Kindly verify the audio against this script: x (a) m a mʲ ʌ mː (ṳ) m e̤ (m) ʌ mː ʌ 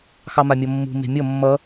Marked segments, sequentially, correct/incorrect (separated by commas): incorrect, correct, incorrect